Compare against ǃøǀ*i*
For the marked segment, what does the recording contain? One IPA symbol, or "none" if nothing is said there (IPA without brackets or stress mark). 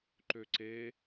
e